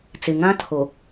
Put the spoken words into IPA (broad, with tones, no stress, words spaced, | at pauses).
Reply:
t͡sɪ˨ŋã˦ tʰo˨